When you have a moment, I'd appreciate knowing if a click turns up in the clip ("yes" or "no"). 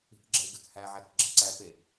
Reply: yes